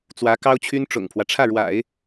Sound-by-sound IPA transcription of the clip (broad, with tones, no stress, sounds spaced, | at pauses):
t͡s w ä˧˥ k ɑ˥ ʊ̯ t͡ɕʰ y˥ n ʈ͡ʂ ʊ̰˨˩ ŋ pʰ w ä˦ ʈ͡ʂʰ ä˥˩ ɻ w a̰˨˩˦ ɪ̯